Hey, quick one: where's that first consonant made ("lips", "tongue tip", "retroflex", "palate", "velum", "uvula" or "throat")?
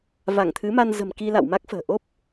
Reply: lips